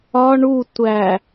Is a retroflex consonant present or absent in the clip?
present